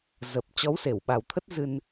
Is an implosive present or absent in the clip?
present